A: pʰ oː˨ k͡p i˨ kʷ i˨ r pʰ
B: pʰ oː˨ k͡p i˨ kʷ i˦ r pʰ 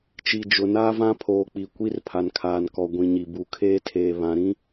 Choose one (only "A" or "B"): B